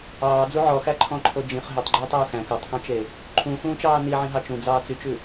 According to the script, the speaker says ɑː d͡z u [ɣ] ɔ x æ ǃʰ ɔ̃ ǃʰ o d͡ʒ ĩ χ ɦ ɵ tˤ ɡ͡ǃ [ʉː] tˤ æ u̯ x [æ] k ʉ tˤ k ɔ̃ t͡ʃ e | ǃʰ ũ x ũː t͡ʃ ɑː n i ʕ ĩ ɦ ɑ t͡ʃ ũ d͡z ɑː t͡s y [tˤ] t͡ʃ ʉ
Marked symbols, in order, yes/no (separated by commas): no, yes, no, no